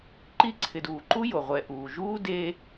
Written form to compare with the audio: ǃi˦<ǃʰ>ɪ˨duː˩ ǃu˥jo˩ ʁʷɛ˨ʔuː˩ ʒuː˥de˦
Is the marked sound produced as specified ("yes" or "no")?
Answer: no